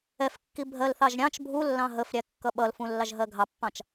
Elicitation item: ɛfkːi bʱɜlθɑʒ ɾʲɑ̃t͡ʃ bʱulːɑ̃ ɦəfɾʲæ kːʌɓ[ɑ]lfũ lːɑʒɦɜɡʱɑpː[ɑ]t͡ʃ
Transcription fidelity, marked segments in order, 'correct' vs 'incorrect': incorrect, incorrect

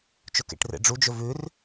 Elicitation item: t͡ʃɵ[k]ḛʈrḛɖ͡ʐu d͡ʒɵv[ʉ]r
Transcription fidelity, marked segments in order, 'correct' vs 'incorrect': correct, correct

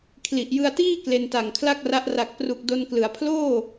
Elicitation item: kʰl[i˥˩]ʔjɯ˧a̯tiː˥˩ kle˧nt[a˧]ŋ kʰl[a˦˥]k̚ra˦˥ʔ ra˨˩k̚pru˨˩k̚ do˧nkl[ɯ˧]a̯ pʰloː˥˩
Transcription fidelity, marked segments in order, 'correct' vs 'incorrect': incorrect, incorrect, incorrect, incorrect

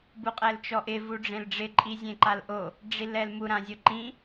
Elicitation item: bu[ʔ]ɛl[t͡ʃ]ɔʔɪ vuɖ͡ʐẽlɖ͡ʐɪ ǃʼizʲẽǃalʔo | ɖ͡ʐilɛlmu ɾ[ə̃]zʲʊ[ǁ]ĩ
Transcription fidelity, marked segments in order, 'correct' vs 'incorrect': incorrect, correct, incorrect, incorrect

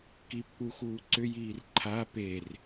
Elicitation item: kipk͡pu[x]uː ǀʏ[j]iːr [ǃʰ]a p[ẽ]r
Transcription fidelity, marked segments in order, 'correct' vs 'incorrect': correct, correct, correct, incorrect

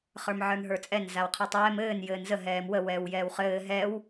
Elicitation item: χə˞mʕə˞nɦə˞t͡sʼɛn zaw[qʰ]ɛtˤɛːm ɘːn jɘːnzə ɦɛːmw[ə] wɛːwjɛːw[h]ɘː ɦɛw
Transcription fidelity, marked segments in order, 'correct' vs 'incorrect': correct, correct, incorrect

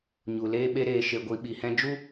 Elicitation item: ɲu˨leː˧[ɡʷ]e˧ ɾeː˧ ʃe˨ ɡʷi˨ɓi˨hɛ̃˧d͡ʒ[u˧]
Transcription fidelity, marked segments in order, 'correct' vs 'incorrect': incorrect, incorrect

